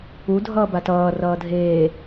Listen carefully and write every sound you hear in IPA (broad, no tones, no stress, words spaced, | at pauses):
u dʱʌːbatʌː rʌːdʱeː